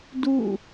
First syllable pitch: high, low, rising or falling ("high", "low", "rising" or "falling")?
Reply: falling